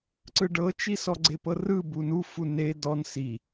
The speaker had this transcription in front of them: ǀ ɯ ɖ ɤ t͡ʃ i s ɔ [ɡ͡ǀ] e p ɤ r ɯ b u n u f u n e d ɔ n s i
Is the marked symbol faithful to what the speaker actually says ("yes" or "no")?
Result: yes